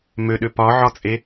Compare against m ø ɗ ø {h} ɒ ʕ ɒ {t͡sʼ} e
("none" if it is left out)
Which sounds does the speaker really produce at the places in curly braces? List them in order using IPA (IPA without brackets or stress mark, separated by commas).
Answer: p, t͡sʼ